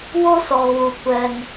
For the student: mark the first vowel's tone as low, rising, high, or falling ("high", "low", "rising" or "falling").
high